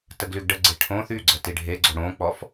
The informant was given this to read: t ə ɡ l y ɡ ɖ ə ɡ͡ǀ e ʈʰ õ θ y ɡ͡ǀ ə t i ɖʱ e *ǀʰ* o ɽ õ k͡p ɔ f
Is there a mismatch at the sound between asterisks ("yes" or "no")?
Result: yes